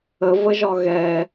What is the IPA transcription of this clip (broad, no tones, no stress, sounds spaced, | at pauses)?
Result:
ə v ə ʒ ɒ ɣ ɛ